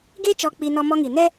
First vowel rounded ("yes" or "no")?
no